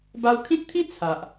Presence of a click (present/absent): absent